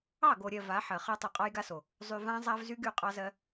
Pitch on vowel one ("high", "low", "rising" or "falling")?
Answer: falling